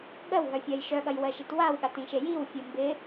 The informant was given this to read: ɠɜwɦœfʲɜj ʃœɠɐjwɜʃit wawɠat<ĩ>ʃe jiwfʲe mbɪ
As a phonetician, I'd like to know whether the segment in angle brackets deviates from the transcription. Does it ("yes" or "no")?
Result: no